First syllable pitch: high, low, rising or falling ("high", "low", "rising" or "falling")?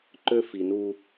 high